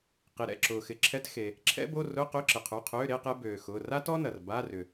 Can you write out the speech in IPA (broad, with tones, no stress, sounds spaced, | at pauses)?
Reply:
q i˩ ɾ ɛ̰˩˧˩ ǁ ʊː˩ x ɪ˩˧˩ ǁʰ ɛ˧˥˧ t x e˩ | ǁʰ ɛ̰˥ b o˧˥˧ r ʊ˧˥˧ q ʏ˧˥˧ ǁ ɪ˩ qʰ u˩˧˩ qʰ øː˧˥˧ ɾ e˧˥˧ q ɛ˥ b øː˩ x ʊː˩˧˩ r a˥ t ɔ˥ n ɐ˩ r b a˧˥˧ r ʏ˩